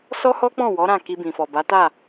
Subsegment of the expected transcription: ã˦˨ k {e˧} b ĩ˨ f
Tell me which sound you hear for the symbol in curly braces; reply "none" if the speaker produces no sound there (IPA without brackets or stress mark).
i˧